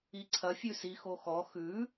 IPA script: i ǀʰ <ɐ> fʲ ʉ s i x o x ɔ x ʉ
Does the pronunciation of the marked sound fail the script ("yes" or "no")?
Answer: no